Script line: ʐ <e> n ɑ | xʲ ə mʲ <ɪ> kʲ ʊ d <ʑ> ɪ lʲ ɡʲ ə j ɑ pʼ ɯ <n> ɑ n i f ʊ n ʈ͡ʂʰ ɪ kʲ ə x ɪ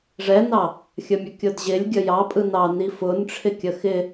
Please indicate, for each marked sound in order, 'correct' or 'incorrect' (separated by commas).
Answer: incorrect, incorrect, correct, correct